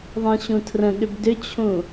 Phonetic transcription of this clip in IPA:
ðˤ ẽ ɕ ũ tʰ r ə̃ ɠ ʏ b d ʏ t͡ɕʰ ũ

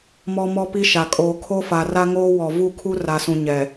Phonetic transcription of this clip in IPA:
m ɔ˦ m ɔ˦ p i˦ ʃ a˨ kʼ oː˨ kʰ o˦ f a˨ r a˦ ŋ oː˦ w ɔ˨ v u˦˨ kʰ u˦ r a˨ s ũ˨ ɲ ɛ˨

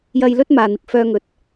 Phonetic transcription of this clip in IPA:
j ɐ˧ j l ɵ˥ t̚ m aː˨ n̪ ɪ˨ k̚ f œː˧ ŋ ɵ˨ t̚

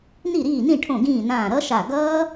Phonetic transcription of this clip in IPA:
n i˧˩ ɾ iː˧˩ n ĩ˧˩ ʈʰ õ˧˩ ɡ ĩː˧˩ n ãː˧˩ ɾ ʌ˦˥ ʃ a˧˩ ɡ ʌː˦˥

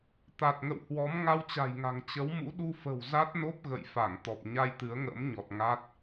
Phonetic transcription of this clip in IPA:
t̪ a˨˩ t̚ ŋ ə̰˧˨ w h w ɔ˨˦ m ŋ a˧ w t͡ɕ a̤˨˩ j ŋ a̤˨˩ ŋ t͡ɕ ə˨˦ w m ṵ˧˥ ɗ u˧ f ə̤˨˩ w z a˦˥ t̚ n o˦˥ p̚ ɣ ə̰˧˨ j f a˧˩ ŋ t̪ ɔ˨˩ p̚ ɲ a˧ j t̪ ɨ˨˦ ə̯ ŋ ə̰ː˧˥ m ɲ ɔ˨˩ t̚ ŋ a˦˥ t̚

